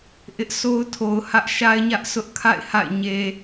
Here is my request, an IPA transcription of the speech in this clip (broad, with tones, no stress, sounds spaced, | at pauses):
ʔ ɪ˦ ʔ sʰ o˦ ʊ̯ tʰ o˨ ʊ̯ h ä˦ ʔ ʃ a˦ ɪ̯ ɲ ä˦ ʔ sʰ ʊ˦ ʔ kʰ a̰˦˨ ɪ̯ h a̰˦˨ ɪ̯ ɲ e˨